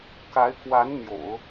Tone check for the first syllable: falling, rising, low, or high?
rising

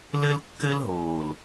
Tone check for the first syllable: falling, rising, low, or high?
high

